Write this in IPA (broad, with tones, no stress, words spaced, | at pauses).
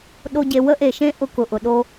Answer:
ɗo˦ɟe˧ wə˦ʔe˨ʃẽ˦ ʔʊ˧kʊ˨ʔʊ˨ ɗo˧